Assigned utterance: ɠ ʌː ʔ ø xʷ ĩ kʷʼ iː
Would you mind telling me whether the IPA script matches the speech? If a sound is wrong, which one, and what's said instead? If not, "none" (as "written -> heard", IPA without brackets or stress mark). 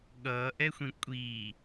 ø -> ɛ